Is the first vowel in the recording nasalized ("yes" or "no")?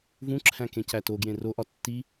yes